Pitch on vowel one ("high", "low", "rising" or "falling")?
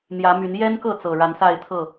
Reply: rising